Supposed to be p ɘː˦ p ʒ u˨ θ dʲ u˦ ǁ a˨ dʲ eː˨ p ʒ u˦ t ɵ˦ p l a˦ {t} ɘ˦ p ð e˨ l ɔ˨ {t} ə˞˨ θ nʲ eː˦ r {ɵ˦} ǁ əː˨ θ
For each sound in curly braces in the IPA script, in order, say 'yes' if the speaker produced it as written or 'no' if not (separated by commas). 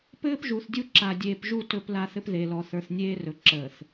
no, no, no